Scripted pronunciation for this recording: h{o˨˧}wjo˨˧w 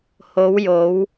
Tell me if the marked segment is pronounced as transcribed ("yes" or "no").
yes